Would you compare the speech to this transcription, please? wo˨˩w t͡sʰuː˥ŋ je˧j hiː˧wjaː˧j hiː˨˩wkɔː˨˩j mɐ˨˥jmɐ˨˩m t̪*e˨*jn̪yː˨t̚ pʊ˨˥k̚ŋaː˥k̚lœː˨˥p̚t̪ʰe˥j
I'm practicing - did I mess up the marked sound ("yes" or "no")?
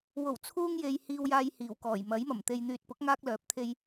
no